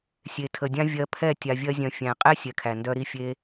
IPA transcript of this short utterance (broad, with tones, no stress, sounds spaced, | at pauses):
sʲ e˨ tʰ ə˨ dʲ ã˦ vʲ ɜ˧ pʰ ɛ˦˨ tʲ a˨ vʲ ɜ˧ zʲ œ̃˨ fʲ æ̃˨ qʼ e˦ sʲ ɛ˨ kʰ æ˨ n d œ˧ ɾ i˧ fʲ e˧